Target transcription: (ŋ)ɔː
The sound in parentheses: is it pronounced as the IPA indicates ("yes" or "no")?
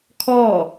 no